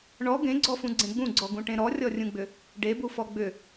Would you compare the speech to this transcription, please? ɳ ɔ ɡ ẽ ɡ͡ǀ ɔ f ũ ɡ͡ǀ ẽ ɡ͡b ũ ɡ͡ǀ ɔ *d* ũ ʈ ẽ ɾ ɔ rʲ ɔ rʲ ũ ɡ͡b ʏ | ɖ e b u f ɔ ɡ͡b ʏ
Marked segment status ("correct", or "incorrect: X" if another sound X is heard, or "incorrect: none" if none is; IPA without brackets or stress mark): incorrect: ɡ